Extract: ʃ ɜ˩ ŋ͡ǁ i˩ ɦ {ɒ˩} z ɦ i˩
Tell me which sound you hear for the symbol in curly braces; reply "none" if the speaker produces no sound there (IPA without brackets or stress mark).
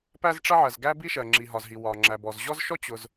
ɒ˩